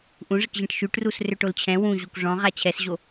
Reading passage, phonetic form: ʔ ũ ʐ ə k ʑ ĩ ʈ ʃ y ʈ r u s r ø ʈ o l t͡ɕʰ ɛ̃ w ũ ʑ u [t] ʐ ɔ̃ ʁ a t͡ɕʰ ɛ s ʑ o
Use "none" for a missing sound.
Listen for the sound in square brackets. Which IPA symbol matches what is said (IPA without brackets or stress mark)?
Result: k